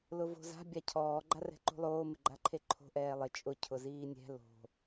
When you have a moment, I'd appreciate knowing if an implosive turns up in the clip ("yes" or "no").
no